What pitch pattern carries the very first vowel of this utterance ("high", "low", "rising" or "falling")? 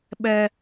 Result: high